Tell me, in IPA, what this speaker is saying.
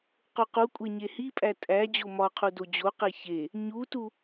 q o q u kʷʼ e ɲ e h i pʼ æ tʼ æ d͡ʑ o m ɒ qʰ u d o d͡ʑ o q e ç e | ɲ u t u

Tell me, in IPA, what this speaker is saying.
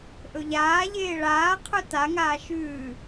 ʔ ɵ ʎ aː ʎ eː ɭ aː qʰ ɵ t a ŋ aː ʃ ʉː

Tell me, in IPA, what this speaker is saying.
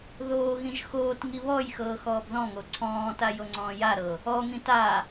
ð oː ɣ ĩ ʒ x oː t ŋ i β ɔ j x ɤː x ɔː b ð ɔ̃ ŋ o ǀʰ ɔ̃ː t a j o ŋ͡ǀ ɔ̃ː j a ɾ ɤ | ɔ ŋ ĩ t a

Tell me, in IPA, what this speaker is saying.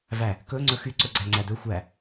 v æ | k ɵ ŋ͡ǀ ɵ x y ǀ ɵ ɡ͡ǀ æ ŋ͡ǀ æ d ɵ xʷ æ

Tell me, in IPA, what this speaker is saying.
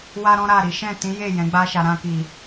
w a˦ ɾ ɔ̃˦ ɾ a˦˨ ɾ i˨˦ ʃ ɛ̃˦˨ t ĩ˨˦ j e˦˨ j ɛ̃˨˦ ɡ͡b a˦ ʃ a˧ ɾ ã˧ k i˨

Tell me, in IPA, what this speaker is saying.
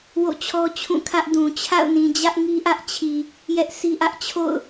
w o̰˦˨ t͡ɕʰ ɔ˦ t͡ɕʰ ũ˦˨ kʰ ä˦ ʔ d ũ˨ t͡ɕʰ a̰˦˨ ʊ̯ n ĩ˨ d͡ʑ ä˦ ʔ ŋ i˦ ʔ ä˦ ʔ t͡ɕʰ i˨ | j ɛ˦ ʔ s i˦ ʔ ä˦ ʔ t͡ɕʰ o̰˦˨ ʊ̯

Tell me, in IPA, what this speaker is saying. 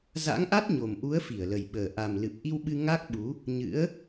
z a̰˧˥ ŋ ʔ a˦˥ t̚ ɲ o˨˩ m ʔ u˨˦ ə̯ f i˧˩ ə̯ l ə˨˩ j ɓ əː˨˩ ʔ a˨˩ m l ɨ˨˩ p̚ ʔ i˧ w ɓ ɨ˧ ŋ a˦˥ k̚ ɓ u˨˦ | ɲ ɨ̰˧˥ ə̯

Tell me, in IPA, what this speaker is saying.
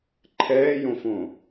ǃʰ ɛː j õ f õ

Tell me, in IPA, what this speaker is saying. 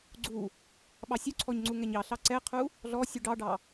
ɡ͡ǀ u | ɓ ɑ sʲ u ǀʰ ɔ ɲ ŋ͡ǀ u ŋ ɛ ɲ ɑ ɬ ɑ ǀ ɛ qʰ u | ɮ ɔ sʲ u ɖ ɑ ɖ ɑ

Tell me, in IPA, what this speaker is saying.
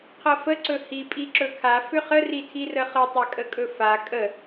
qʰ ɤ f ə ǀ ɵ h i pʼ i ǁ ɵ kʰ a f ʏ χ ə r i tʰ i r ə χ ɤ tˤ a kʼ ə kʼ ɵ f a kʼ ə

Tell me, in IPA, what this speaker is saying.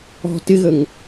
ɔ̤ t ɪ ɣ ə ŋ

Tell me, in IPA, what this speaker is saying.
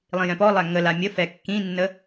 lˠ ĩ j ɛ̃ p ɔ lˠ æ ŋ ə l a mʲ ə f ɛ kː ĩ nː ə

